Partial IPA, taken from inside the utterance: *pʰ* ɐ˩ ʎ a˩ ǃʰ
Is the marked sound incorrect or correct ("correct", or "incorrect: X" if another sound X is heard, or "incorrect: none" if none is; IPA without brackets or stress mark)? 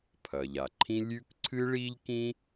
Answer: correct